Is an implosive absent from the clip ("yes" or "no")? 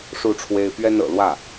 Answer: yes